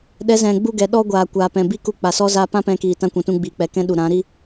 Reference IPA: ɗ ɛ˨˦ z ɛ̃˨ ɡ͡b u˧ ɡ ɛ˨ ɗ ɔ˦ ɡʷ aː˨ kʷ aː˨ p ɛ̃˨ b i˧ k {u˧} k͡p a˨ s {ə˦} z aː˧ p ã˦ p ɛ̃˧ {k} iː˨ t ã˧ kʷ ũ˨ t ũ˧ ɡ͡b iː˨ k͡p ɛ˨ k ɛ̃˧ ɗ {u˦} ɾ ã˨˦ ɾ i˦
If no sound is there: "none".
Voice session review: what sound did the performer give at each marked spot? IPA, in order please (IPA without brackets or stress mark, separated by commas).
u˧, ɔ˦, k, u˨